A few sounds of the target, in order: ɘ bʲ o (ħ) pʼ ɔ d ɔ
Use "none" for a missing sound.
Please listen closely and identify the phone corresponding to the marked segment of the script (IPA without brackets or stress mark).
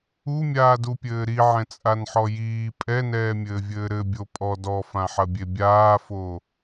none